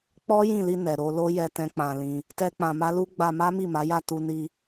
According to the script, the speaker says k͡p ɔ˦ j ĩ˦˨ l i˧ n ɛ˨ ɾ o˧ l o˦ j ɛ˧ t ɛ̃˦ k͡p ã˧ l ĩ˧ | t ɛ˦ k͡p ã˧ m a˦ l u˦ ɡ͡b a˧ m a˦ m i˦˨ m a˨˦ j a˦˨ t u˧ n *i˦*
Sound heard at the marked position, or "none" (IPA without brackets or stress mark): i˧